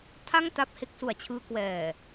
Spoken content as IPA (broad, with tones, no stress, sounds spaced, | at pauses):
tʰ a˥˩ ŋ t a˦˥ p̚ h e˦˥ k̚ s u˨˩ a̯ t͡ɕʰ ɯː˧ k w ɛː˨˩